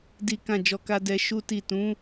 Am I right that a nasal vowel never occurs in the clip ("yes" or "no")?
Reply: no